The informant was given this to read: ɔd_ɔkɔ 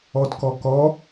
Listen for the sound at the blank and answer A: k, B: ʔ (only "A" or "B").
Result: A